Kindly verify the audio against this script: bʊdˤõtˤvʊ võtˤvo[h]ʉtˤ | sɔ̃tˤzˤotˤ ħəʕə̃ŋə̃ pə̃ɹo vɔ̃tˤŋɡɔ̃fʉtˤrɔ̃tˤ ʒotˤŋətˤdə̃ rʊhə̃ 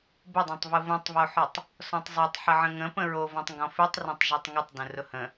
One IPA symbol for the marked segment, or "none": ħ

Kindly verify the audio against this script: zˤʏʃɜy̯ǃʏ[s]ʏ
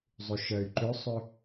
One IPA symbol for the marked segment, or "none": sˤ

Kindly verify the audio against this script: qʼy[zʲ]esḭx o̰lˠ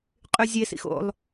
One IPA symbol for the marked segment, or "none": zʲ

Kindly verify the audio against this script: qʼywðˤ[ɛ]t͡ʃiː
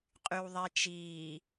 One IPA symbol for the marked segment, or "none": e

